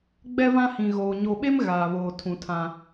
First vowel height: mid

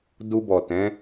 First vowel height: high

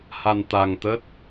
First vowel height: low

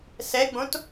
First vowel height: mid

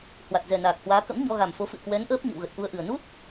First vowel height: low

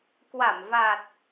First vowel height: low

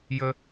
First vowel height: mid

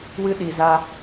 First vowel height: high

